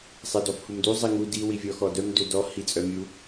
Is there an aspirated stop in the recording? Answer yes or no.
no